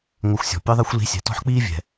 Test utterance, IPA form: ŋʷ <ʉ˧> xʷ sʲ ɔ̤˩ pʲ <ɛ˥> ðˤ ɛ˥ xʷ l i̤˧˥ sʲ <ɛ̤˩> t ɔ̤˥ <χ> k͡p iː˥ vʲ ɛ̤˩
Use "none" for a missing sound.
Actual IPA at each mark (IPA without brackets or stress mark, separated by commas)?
ɘ˧, ɨ˥, ɛ̤˩, ħ